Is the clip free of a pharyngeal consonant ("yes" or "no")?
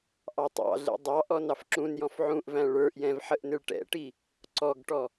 no